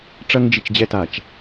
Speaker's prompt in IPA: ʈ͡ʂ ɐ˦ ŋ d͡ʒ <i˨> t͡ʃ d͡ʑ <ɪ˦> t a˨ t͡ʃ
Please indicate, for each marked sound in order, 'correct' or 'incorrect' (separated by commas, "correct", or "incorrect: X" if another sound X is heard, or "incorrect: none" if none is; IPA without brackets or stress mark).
correct, incorrect: ɛ˦